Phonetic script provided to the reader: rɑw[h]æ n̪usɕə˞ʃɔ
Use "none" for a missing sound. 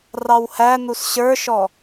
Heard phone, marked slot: h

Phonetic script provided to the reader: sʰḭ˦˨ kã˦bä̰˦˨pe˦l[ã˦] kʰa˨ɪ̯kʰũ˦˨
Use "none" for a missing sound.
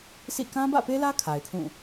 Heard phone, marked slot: ä˦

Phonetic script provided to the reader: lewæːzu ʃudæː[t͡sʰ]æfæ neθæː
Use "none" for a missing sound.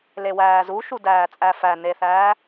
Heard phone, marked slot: t͡sʼ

